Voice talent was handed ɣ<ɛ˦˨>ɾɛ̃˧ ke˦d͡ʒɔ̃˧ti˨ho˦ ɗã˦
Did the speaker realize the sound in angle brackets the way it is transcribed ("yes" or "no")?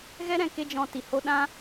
no